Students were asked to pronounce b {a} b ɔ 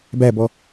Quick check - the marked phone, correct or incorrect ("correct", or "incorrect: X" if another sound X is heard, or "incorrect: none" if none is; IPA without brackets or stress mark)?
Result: incorrect: æ